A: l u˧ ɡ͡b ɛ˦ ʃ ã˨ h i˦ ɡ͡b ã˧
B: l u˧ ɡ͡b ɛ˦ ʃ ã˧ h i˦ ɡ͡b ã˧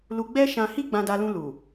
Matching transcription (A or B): B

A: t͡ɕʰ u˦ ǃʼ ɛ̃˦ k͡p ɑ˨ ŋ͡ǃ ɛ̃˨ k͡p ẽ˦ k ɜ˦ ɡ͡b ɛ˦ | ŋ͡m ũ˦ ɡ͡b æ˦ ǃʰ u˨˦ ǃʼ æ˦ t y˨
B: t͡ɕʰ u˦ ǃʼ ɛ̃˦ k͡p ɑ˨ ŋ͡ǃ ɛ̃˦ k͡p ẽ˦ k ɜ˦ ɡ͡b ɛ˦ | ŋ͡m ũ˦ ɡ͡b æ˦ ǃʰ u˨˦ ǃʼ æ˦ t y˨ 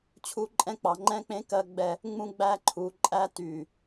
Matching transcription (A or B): B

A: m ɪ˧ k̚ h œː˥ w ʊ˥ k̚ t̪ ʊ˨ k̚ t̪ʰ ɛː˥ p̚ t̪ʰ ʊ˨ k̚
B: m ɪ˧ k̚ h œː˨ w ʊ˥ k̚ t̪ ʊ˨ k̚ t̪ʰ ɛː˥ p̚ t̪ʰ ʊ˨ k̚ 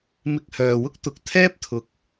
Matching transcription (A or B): B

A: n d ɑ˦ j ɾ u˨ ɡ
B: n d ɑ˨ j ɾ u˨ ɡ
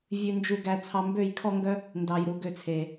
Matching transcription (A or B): B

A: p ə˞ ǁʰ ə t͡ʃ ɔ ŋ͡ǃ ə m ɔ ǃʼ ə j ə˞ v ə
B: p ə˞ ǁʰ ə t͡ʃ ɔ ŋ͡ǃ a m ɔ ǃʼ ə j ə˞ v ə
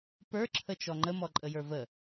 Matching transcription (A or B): A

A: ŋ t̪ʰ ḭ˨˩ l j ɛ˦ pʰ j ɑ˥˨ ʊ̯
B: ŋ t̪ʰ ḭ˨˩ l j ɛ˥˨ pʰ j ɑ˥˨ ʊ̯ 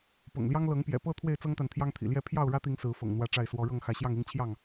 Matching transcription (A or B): B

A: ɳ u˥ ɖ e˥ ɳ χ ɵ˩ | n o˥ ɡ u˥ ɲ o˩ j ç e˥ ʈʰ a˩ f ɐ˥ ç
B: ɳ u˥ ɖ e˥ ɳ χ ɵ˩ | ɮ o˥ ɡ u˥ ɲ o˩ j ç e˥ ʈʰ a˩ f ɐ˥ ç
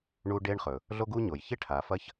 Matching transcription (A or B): B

